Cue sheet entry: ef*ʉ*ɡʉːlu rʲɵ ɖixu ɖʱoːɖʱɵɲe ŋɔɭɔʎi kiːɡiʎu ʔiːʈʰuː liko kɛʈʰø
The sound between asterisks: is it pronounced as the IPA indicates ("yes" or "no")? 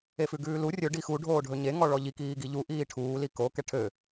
yes